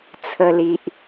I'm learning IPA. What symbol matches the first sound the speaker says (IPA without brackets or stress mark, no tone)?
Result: t͡sʰ